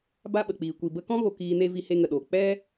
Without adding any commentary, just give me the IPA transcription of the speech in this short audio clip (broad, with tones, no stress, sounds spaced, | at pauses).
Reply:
b a˦ ɓ ə˨ k͡p iː˨ kʷ i˨ b ə˧ k ɔ̃˦ ɣ o˨ k iː˧ n e˦ v i˧ h e˧ ŋ ə˨ ɗ o˨ k͡p ɛ˦